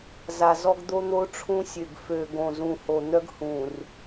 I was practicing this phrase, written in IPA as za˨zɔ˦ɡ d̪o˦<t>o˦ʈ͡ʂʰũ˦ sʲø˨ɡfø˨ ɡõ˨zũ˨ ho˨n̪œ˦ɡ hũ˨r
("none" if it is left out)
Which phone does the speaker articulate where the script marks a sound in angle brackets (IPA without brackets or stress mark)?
n̪